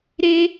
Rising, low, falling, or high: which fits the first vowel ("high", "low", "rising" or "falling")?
high